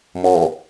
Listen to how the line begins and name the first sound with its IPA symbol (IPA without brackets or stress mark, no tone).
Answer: m